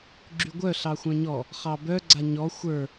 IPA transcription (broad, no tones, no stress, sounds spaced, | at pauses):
ɡ͡ǁ y ɡʷ œ ɬ ɑ xʷ œ̃ ɲ ɔ | χ ɑ b œ ɡ͡ǀ a ɲ ɔ xʷ ə˞